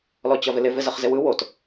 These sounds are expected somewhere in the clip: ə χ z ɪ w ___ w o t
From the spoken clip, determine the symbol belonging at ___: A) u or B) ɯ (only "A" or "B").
B